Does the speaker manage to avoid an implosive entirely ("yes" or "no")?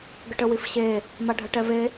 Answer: yes